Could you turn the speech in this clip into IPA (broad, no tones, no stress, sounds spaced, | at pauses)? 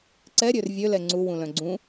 ǀ ɛ ɾʲ ø r vʲ ø l ɛ ŋ͡ǀ u w ũ l œ̃ ɡ͡ǀ ũ